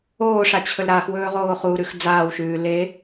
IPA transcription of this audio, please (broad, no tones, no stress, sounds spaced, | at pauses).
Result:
oː ʂ a t͡ɕʰ ɵ l ɾ a x w ɵː ʁ oː χ u ɾ ʉ x d͡z aː w ʃ ʉː l e